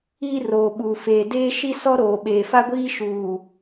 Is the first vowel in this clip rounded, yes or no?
no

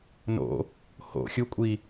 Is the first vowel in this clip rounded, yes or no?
yes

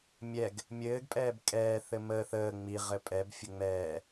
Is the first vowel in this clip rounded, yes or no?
no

